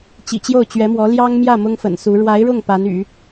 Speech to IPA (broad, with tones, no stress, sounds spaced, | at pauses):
t͡ɕ ḭ˨˩ t͡ɕ j o˥˩ ʊ̯ t͡ɕ ɥ ɛ˧˥ m w ɔ˧˥ l j ɑ˥ ŋ m j ä˥˩ m ʊ˥ ŋ f ə̰˨˩ n s u˧˥ ɻ w a˧˥ ɪ̯ ɻ ʊ˥˩ ŋ p a˧˥ n y̰˨˩˦